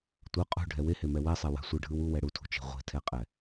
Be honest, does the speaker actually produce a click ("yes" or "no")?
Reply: no